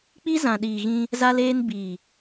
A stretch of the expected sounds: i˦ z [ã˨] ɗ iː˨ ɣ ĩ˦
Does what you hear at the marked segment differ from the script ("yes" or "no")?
no